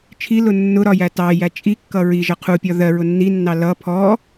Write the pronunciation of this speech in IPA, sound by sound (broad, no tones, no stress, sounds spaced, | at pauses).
t͡ʃʰ i l ʊ nː ʊ ɾ ɒ j æ t ɑ j æ t͡ʃʼ i kː ʌ ɹ i ʒ ʌ qʰ u pʲ ɒ ð ɜ ɹ ʊ nː i nː ɑ l ʌ pʰ ɔ